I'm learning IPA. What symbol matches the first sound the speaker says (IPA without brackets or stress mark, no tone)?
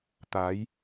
t̪